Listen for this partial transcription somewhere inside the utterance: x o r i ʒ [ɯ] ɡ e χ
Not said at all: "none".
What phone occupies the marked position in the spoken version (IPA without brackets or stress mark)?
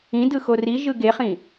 ɯ